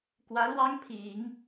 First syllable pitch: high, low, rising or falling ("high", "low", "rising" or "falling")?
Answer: rising